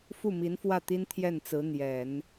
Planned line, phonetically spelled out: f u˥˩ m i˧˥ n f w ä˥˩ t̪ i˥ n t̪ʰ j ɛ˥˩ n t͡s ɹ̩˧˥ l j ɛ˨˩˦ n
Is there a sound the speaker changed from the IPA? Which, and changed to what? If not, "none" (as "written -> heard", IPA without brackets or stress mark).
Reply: l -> n̪